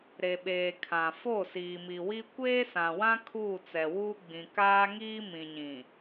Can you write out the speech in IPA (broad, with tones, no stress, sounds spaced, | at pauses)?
ɾ e˨ ɓ eː˨ kʰ ã˨ f o˦˨ s iː˨ m i˨ w i˦ kʷ eː˦ s ã˨ w ã˦ kʰ uː˦˨ t͡s ɛ˨ w uː˦ ɡ͡b ĩ˨ k aː˦ ŋ iː˦ m ĩ˨ ɲ ĩ˨